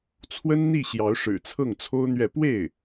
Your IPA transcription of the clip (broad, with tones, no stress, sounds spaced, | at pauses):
t͡sʰ w ə˥ n n̪ i˥˩ ɕ j ɑ˧˥ ʊ̯ ʂ ɻ̩˨˩ t͡sʰ ɤ˥˩ ŋ t͡sʰ o˥ ʊ̯ n̪ ɥ ɛ˥˧ p w e˥˩ ɪ̯